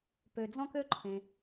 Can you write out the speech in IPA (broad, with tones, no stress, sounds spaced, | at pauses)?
p ø˩ d͡z ɔ̃˥ k ø˥ ǃʰ ẽ˩